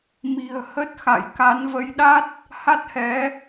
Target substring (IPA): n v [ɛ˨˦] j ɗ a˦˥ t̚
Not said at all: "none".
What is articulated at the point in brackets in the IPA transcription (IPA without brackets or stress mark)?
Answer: ə˨˦